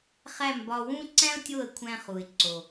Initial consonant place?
uvular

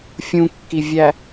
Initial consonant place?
labial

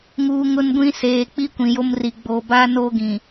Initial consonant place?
velar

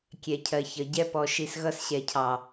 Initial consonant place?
velar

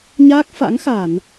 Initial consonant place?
palatal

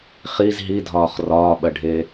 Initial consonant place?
uvular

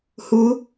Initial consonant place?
glottal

